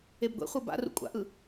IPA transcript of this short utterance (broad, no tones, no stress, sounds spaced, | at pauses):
e b ɡʷ ḛ χʷ ɤ b a̰ r ṵ kʷʼ a̰ ʔ ɯ